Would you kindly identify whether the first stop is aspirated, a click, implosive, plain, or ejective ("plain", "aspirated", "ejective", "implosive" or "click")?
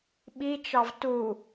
implosive